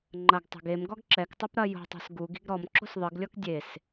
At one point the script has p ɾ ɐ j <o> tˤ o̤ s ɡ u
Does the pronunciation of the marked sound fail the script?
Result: yes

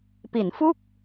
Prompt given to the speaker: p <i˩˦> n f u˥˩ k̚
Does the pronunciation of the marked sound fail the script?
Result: no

